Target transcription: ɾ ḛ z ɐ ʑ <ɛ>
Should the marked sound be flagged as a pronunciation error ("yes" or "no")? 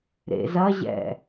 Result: yes